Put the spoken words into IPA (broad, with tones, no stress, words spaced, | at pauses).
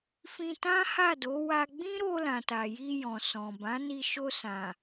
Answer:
fĩ˧tã˦ ha˦˨do˨˦ wa˧ ɡ͡bĩ˦ɾo˧ lã˨ta˨ji˧ jɔ̃˨sɔ̃˨bã˨˦ni˧ ʃo˧sã˨